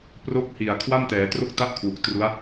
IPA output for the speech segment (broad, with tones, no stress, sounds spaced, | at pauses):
p r o˦˥ k̚ h i˨˩ a̯ kʰ w a˥˩ m t ɛː˩˦ t r o˥˩ k̚ t a˥˩ ʔ kʰ w u˨˩ k̚ t r u˦˥ a̯